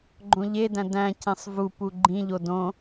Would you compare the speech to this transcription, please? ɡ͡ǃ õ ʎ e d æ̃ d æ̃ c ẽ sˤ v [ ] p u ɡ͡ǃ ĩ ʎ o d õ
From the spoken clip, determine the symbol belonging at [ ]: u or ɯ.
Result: u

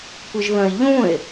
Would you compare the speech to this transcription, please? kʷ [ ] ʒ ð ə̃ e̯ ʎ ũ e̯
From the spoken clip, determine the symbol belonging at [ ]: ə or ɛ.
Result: ə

